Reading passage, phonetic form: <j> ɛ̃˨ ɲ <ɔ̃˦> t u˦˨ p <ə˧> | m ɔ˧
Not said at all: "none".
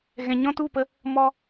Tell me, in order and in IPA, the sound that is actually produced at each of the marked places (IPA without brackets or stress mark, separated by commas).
ɣ, ɔ̃˦, ə˧